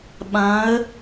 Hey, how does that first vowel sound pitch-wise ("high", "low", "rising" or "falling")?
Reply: rising